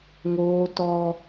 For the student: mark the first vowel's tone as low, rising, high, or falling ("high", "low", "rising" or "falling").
high